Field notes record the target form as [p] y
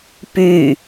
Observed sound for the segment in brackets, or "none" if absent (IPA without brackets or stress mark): p